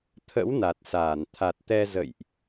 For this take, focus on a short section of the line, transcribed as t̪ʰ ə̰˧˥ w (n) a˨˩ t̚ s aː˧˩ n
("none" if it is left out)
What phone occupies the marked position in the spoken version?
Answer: n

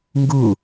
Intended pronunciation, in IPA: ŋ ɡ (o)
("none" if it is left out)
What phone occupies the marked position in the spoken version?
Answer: u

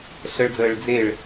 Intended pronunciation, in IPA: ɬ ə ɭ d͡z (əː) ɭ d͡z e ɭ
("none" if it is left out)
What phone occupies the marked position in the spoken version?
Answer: əː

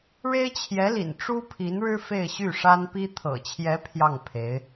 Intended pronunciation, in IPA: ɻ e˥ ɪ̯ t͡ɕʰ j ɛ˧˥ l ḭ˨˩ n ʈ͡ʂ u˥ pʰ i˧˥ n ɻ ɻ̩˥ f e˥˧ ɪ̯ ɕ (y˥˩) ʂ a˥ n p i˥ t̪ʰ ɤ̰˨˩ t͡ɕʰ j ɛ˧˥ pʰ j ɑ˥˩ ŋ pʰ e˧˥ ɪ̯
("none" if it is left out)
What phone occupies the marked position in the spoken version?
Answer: y˥˩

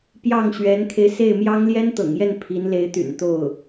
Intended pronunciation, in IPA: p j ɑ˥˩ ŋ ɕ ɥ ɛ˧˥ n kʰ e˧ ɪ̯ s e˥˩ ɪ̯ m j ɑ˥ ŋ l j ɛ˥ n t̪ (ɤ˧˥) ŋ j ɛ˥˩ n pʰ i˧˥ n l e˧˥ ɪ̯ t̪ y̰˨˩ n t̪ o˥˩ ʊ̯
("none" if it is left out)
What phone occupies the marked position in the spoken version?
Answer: ɤ̰˨˩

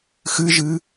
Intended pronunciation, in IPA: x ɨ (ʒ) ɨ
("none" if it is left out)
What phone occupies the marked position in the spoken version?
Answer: ʒ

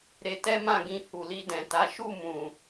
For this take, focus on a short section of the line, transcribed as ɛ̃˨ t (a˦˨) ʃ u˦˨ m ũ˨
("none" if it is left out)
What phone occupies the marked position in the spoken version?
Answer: a˨˦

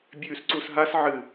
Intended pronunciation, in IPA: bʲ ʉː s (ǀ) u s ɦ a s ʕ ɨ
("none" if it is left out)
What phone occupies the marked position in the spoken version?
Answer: ǀ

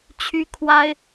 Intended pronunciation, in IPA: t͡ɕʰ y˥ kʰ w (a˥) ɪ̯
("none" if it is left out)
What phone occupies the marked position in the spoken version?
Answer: a˥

